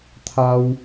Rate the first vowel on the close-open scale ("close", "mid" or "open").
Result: open